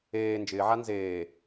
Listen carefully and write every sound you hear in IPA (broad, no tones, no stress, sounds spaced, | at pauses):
eː n d͡ʒ ɪː ʕ a n z eː